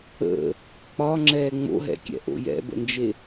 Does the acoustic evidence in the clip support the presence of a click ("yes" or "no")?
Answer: yes